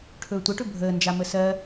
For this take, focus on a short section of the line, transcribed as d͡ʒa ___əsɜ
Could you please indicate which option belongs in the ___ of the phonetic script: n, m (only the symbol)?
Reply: m